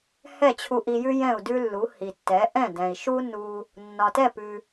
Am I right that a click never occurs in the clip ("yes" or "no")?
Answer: yes